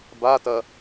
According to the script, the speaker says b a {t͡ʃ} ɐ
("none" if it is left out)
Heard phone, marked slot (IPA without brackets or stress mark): t